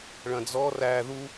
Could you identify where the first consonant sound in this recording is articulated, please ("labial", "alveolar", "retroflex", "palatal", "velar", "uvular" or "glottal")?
retroflex